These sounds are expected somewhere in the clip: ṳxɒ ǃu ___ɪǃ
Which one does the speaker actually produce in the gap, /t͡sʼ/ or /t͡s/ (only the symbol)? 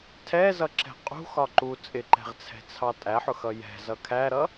t͡sʼ